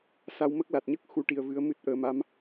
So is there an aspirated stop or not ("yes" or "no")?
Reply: no